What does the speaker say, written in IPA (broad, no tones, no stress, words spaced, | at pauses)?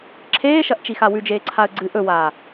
ǁʰeːʃɐʔt͡ʃixa wʉd͡ʒeːǀʰaə̯ ɡ͡ǀɨ ʔɵwaː